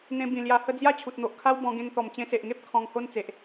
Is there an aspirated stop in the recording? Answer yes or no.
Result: yes